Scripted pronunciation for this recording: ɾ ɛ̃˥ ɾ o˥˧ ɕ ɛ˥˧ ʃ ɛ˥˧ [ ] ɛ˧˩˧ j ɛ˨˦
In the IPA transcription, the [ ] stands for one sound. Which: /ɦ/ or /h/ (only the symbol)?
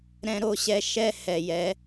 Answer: h